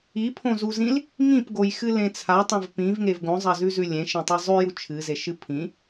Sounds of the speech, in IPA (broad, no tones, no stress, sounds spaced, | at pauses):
i pʰ õ z u z ĩ l | ŋ ĩ p ɡ o j x ɨ l ẽ t͡sʰ a tˤ ẽ v p ĩ v ŋ e v ɡ õ zˤ ɐ z ʉ z ʉ lʲ ẽ ʃ ẽ tˤ e zˤ ʉ j u t͡ʃʰ ɨ z e ʃ ɨ pʰ ĩ